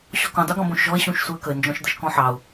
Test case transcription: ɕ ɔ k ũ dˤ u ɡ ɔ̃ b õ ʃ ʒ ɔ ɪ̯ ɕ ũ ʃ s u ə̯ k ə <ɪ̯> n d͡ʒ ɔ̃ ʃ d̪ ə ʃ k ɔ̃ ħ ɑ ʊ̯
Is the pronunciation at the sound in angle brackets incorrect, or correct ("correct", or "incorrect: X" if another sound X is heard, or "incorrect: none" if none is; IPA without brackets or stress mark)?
correct